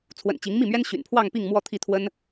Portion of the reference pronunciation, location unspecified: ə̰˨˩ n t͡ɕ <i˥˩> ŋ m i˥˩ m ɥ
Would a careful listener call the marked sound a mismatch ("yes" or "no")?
yes